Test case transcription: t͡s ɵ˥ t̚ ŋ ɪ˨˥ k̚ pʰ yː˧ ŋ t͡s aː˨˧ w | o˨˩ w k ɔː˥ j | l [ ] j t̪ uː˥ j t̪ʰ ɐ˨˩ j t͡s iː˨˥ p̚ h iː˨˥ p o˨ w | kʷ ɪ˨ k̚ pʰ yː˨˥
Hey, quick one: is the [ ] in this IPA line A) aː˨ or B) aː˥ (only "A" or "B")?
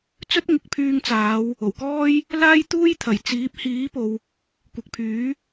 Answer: B